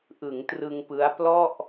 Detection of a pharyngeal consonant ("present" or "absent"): absent